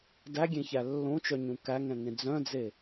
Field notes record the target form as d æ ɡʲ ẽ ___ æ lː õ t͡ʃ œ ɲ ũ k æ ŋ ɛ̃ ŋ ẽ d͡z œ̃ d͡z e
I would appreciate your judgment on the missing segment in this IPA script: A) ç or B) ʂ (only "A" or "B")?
A